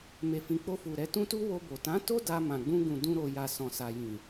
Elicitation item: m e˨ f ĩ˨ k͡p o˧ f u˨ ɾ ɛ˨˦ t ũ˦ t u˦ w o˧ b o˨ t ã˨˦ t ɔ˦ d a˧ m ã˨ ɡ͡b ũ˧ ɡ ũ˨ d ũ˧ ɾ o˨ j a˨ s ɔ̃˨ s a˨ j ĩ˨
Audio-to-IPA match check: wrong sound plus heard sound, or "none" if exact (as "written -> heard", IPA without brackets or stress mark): ɔ˦ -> o˦